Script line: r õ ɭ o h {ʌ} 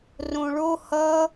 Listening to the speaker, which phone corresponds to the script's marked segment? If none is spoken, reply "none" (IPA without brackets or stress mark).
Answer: ʌ